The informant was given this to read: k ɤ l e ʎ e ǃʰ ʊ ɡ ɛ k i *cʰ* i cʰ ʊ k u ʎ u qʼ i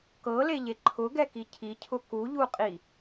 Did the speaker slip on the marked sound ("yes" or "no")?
no